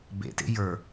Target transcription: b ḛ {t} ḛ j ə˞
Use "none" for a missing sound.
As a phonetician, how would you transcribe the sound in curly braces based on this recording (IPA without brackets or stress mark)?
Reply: t